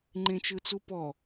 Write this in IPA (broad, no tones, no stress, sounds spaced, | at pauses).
ŋ͡ǃ ẽ t͡ʃ ɯ t͡s u p ɔ